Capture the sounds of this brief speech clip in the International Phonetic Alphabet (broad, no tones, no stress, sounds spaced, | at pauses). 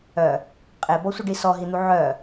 œ | qʼ e b ɔ sʷ ə ɖ i s ɔ ɦ i n̪ u ʕ œ